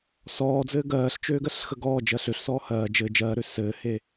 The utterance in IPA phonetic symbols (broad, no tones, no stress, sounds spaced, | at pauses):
s ɔː d͡z ɘː ɡ ɜː ɬ t͡ʃ øː ɡ ɜ ɬ x ə ɡ ɔː d͡ʒ ɜ ɬ ø ɬ s ɔː h ɜː d͡ʒ ɘː d͡ʒ ɜː ɾ ø s ɘː h e